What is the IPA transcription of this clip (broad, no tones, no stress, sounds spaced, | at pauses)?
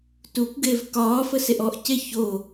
t u kʷ ɡ e v k ɒː f ə s e ʔ ɔ ʔ c e ç o